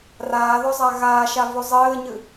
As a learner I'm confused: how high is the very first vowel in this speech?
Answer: low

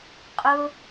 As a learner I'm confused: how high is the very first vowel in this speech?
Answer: high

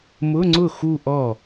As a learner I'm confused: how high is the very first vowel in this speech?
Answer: high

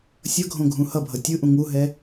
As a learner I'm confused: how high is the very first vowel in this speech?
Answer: mid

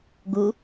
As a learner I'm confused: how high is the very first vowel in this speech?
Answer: high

